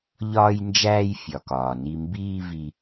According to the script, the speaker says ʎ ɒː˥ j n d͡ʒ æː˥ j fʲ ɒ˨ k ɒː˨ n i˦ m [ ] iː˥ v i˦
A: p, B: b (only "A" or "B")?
B